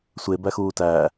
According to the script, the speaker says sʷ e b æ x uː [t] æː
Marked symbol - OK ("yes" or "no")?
yes